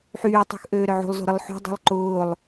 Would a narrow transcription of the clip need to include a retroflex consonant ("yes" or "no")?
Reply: no